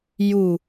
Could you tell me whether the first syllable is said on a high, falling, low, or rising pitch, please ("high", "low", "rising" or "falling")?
low